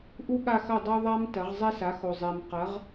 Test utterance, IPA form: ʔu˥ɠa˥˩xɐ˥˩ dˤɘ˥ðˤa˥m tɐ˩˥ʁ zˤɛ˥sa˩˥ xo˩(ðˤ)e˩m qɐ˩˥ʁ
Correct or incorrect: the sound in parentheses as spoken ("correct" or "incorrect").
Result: incorrect